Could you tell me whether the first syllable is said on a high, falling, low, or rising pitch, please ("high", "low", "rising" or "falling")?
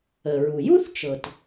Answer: low